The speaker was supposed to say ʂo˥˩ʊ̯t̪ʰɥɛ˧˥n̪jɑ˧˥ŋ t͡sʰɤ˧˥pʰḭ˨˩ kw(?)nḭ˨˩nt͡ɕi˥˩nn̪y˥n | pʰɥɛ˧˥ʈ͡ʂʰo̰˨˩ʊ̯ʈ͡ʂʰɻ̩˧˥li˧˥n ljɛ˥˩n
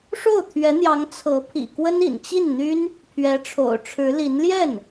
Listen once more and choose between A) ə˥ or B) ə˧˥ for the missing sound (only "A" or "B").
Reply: A